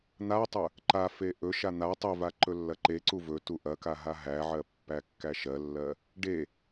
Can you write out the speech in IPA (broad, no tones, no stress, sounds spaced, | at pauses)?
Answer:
n̪ a tˤ ɵ | ǃ a f e ʔ ɵ ʃ a n̪ a tˤ ɵ v a ǃ ɵ lː ɐ ǃ e ǀ u v ɵ t u ʔ ɐ k a ɦ a ɦ æ ʕ ɜ pː æ kː æ ʃ ɜ lː ɜ | ɖ e